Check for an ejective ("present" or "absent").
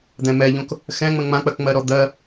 absent